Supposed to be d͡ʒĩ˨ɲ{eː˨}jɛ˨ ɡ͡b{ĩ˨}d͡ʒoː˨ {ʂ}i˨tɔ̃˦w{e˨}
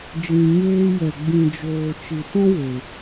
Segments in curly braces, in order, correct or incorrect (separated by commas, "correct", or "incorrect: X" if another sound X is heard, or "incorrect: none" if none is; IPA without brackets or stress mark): incorrect: eː˧, correct, incorrect: t͡ʃ, correct